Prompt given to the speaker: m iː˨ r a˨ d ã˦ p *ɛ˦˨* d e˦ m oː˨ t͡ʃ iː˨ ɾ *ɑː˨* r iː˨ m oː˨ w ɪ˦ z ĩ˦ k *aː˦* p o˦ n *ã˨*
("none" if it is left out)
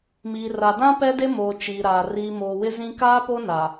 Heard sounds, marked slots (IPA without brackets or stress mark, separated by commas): ɛ˦, aː˨, aː˦, a˨